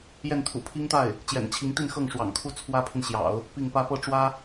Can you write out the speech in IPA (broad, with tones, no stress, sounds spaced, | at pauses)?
j ɛ˥˩ n t̪ʰ ṵ˨˩ pʰ i˥ ŋ t̪ a˥˩ ɪ̯ | t͡ɕ j ɛ̰˨˩ n t͡ɕʰ i˧˥ ŋ t̪ i˥˧ n x ɤ˥˩ ŋ ʂ w ɑ̰˨˩ ŋ kʰ u˥˩ t͡sʰ w ä˥ pʰ i˨ n ɕ j ɑ̰˨˩˦ ʊ̯ | p i˥˩ ŋ p ä˥ p ɤ˥˩ ʈ͡ʂ w ä˥